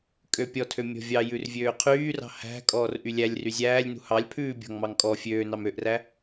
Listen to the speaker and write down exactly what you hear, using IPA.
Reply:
kʼ ø pʲ ɔ tʰ ø mʲ ɔ̤ vʲ ɑ j ʉ r vʲ øː qʰ yː r ɑ̤ h æ̤ kʼ ɔː r ʔ y lʲ æ lʲ r y zʲ æː lʲ n ṳ h ɑ lʲ pʰ ʉː bʲ ɔ̤ ŋ m ɑ ŋ kʼ ɔ fʲ øː n ɑ m ø ʔ r æ

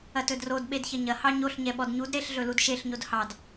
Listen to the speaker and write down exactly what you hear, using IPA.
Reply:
ɐ t ɵ d r o d ɓ e d ç ɐ ɲ ɐ h ɑ ɲ o ɬ ɲ ɛ ɓ ɔ d ɲ u d ɾ e ɬ ɮ ɵ l u d ʃ e ɬ ɲ o d h ɑ d

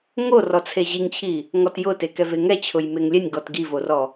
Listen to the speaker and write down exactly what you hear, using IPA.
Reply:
ŋ o r ɔ t͡sʰ e ʑ i ŋ t͡ɕʰ i | ŋ ɔ t j ʊ t e k ɛ v e ŋ ɛ t͡ɕʰ ʊ j m e ŋ lʲ ɛ nʲ ɡ ɔ t ɡ i v o r ɔ

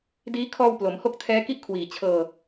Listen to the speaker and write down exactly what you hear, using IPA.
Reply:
d iː˦˥ kʰ ɔː˧ w p l o˩˦ m h o˥˩ k̚ tʰ ɛː˦˥ k i˥˩ ʔ kʰ w iː˨˩ t͡ɕʰ ɤː˧

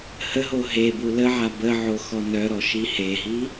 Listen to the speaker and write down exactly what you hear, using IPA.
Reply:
h ə ɦ o ɦ e b u l ə ʕ a b ə ʕ o x ɔ n œ ɾ ɔ ʃ i h e ɦ i

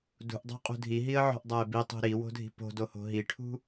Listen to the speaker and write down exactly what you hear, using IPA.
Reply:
d ṳ ʔ dˤ o̤ qʼ ṳ dʱ i ɦ i ə̯ ʕ ɔ̤ ʔ dˤ a ɪ̯ b i tˤ ṳ ɾ i w o̤ dʱ i̤ p o̤ d o h o̤ ɦ i ʈʰ ṳ

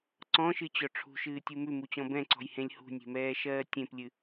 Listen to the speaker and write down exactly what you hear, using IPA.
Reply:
ǀ ɔ̃ ʃ ɨ t͡ɕ ɔ ʈ͡ʂʰ ṳ ʃ ɨː tʲ u m ʉ m u t͡ɕ ɔ̃ b ɛ̃ ǀ ɔ̤ j h ẽ lʲ h ṳ nʲ e̤ m ɛː ʃ ɜː tʲ ẽ p lʲ ɨ

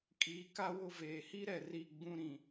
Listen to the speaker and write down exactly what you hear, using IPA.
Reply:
kʼ iː˨ k a˦ w ʊ˦˨ v eː˨ h i˦ ɾ ɛ˨ r i˦˨ ɡ͡b ũ˦ ɾ ĩ˨

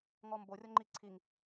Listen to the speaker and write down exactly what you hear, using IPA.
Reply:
ŋ ɔ m b o rʲ ɔ ŋ͡ǃ i ǀʰ i ŋ

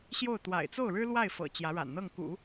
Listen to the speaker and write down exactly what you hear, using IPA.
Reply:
ɕ j o˥˩ ʊ̯ t̪ w a̰˨˩ ɪ̯ t͡s o˥˩ ʊ̯ ɻ ɻ̩˥ l w a˥˩ ɪ̯ f ɤ̰˨˩ t͡ɕ j ä˧˥ ɻ a̰˨˩ n n̪ ɤ˥˩ ŋ k ṵ˨˩˦

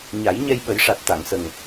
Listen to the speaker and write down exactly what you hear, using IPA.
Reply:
ɲ a˨˩˦ j ɲ ɛ˧ j ɓ ə˨˩˦ j ʂ a˨˩ t̚ t̪ a˨˩˨ ŋ s ə˨˩ ŋ

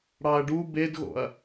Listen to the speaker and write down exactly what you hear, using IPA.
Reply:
ɽ ɑ ɐ̯ ɖ u b e d ɣ o̰ ɐ̯

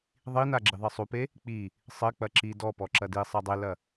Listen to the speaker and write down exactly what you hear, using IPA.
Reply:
ðˤ i n a ɡ͡ǁ i ðˤ ɘ sˤ u p e | k͡p i | sˤ ɘ k͡p ɐ ǁ i d ɔ p ɔ ǁ ɐ d i sˤ ɐ dˤ e l ɐ

